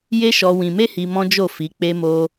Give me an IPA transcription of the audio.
j e˦ ʃ ɔ˧ w ĩ˧ m e˦ h i˧ m ɔ̃˦ d͡ʒ o˦˨ f i˨˦ k͡p e˦ m o˦

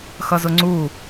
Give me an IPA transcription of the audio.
x ʌ z ʊ ŋ͡ǀ u

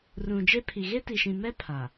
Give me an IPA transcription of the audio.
r ũ˨ d͡ʒ e˦ pʰ i˨ ɣ e˦ t i˨ ʃ ĩ˨ m ɛ˦ pʰ a˨

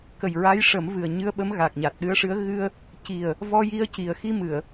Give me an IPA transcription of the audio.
k ə˨˩ j ɹ a˧˥ j ʂ ə˨˩˦ m v ɨ˨˩ ə̯ ɲ ɨ˧ ə̯ ɓ ə˧˥ m ɣ a˨˩ k̚ ɲ a˨˩ t̚ ɗ ɨ˧ ə̯ ʂ ɨ˧˥ ə̯ ɣ ɨ˧ ə̯ | c i˨˩ ə̯ | v ɔ˧ j i˧˥ ə̯ c i˨˩ ə̯ x i˧ m ɨ˨˩˨ ə̯

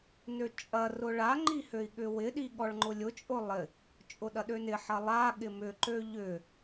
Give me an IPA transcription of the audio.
n ø t͡ʃʼ ɐ r ʊ ɭ a ŋ͡ǃ i h ø i̯ ɠ ʏ w ɪ ɗ i ɠ ɔ ɭ ŋ͡ǃ ʊ lʲ ʊ t͡ʃʼ ʊ lˠ ɪ | t͡ʃʼ ʊ ɗ ɐ ɗ ø n ɪ ħ ɐ lˠ a ɠ ɪ m ʏ ǃ ø ʎ ʏ

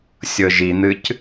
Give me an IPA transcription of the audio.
sʲ ɤ ʒ i n̪ ɨ c

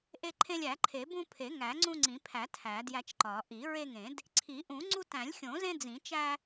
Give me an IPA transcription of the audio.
ʔ e˦ ǃʰ ẽ˦ lʲ æ˨˩˦ ǃʰ e˨˩˦ b ũ˦ pʰ e˨˩˦ ŋ æ˨˩˦ ŋ͡ǀ ũ˦ ŋ͡ǀ ĩ˨˩˦ pʰ æ˨˩˦ tʰ æ˨˩˦ d j æ˦ t͡ʃ ǃ ɒ˨˩˦ ʔ i˨˩˦ ɹ e˦ ŋ ẽ˨˩˦ d | ǀʰ i˨˩˦ ʔ ũ˨˩˦ ŋ͡ǀ u˦ t æ̃˨˩˦ lʲ xʲ õ˨˩˦ z ẽ˦ d͡z ĩ˨˩˦ t͡ʃ æ˦

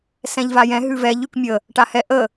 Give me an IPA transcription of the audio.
s ɛ̃ ʎ v a j ɛ̃ ɦ ʉ v ɛ ʎ ʉ k mʲ ə | ʈ a h ɛ ʔ ə

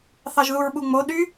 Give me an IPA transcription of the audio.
θ ɑ ʒ ð u ɹ ɓ u ŋ͡m o ɗ y

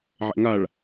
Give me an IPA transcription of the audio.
ʕ ɛ̰ ŋ a ɭ

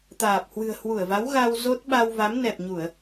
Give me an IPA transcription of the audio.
t̪ aː˨˩ p̚ h w ɨ̤˨˩ ə̯ h w u˧˩ ə̯ v a˨˦ w ɣ a˧ w z o˦˥ t̚ ɓ a˧ w v a˨˦ m n ɛ˨˩ p̚ ɲ u˧˩˨ ə̯

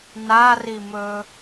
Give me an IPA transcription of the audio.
n a r i m ɵ

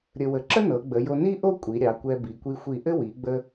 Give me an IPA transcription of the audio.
ɾʲ ə˧ w ə˧˩ ǁ ə˥ n ɤ˩˧ ɡ͡b ə˩˧ j o˧ n i˥ ʔ o˥ kʷʼ i˩˧ ɾʲ ɑ˩˧ kʷ ɛ˧ b i˩˧ kʷ i˧ xʷ i˧˩ ʔ ɘ˥ w i˩˧ ɡ͡b ə˧

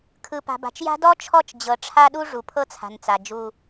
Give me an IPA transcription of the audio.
kʰ ɯ˨ p a̤˨ b a̤˨ t͡ʃ j a̤˦ d ɔ˦ t͡ʃʰ ɔ˦˨ t͡ʃ d͡ʑ ɤ˨ ʈ͡ʂʰ a˦ ɗ u˦ ʐ u˨ pʰ ɤ˦ t͡sʰ a̤˨ n t͡s a˨ d͡ʒ u˦

